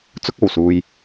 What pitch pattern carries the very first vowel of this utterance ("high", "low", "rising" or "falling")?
high